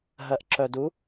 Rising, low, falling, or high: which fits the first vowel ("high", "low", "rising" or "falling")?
low